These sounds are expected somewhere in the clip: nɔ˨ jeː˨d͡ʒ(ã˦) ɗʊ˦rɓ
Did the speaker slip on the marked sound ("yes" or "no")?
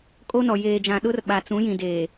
yes